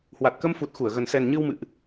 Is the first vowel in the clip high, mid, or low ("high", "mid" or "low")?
low